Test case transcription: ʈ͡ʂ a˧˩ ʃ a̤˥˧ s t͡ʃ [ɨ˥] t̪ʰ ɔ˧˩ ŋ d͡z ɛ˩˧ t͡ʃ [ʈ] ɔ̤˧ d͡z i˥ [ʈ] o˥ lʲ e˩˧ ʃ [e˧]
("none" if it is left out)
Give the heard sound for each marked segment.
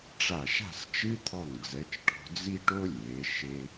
ɨ˥, ʈ, ʈ, e˧

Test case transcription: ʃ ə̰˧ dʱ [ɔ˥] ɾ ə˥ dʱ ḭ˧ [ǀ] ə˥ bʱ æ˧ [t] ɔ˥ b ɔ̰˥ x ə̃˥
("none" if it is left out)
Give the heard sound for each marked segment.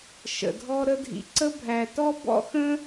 ɔ˥, ǀ, t

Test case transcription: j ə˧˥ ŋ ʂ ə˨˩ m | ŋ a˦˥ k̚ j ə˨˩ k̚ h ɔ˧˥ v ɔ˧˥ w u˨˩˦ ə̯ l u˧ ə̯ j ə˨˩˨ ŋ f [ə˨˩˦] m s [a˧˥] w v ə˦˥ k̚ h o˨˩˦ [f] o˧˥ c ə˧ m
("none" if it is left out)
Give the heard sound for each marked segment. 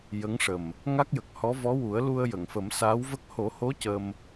ə˨˩˦, aː˧˥, h

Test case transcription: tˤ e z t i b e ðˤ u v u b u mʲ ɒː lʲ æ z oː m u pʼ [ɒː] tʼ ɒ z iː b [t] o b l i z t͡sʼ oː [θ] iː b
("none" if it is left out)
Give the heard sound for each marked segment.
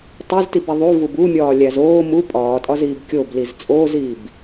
ɒː, kʲ, z

